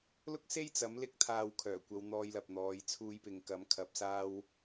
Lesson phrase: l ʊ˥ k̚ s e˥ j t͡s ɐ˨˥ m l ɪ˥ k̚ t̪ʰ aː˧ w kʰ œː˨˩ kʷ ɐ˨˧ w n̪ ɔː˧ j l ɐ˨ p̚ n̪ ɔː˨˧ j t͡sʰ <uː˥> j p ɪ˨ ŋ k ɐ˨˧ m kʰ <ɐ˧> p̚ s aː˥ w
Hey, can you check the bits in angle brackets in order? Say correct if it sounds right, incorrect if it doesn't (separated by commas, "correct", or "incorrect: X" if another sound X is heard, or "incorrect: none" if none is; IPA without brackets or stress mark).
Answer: incorrect: uː˧, correct